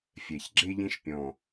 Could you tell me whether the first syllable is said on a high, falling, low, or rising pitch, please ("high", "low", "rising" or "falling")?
low